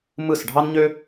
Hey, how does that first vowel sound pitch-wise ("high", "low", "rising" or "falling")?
falling